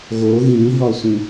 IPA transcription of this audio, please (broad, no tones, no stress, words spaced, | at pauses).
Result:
ɣo ɣĩɦɒsʷĩ